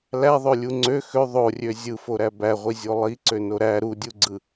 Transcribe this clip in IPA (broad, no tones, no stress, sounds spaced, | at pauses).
l æ ðˤ ø lʲ u ŋ͡ǀ ø x ø ðˤ o rʲ ø zʲ ɯ f o ɾ æ b æ ʁʷ i zʲ o lˠ i ǀ ø n o ɾ æ ɾ u dʲ u ɡ͡ǀ ɯ